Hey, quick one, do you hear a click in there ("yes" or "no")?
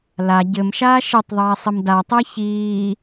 no